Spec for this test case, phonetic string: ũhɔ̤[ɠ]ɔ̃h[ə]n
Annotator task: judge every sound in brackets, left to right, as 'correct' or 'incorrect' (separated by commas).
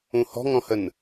incorrect, correct